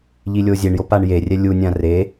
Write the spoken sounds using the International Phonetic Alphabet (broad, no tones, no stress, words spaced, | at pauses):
ʎilʲozʲeɳjo paɳjerʲɛ lʲunʲã re